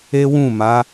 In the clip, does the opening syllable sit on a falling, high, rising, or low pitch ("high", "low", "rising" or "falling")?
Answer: high